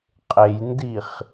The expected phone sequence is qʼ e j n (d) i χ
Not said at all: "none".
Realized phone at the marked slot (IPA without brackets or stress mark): d